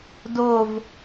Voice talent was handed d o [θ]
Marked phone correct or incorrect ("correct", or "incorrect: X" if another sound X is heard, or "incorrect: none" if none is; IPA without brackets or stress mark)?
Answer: incorrect: v